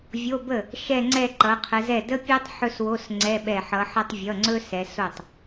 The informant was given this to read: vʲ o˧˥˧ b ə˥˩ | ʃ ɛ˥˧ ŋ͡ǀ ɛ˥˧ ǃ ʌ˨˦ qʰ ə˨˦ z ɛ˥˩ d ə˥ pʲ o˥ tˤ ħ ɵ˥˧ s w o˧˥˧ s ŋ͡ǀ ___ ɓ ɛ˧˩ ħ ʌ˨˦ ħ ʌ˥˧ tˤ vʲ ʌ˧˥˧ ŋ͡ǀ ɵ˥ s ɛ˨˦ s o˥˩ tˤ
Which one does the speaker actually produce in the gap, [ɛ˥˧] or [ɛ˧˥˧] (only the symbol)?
ɛ˧˥˧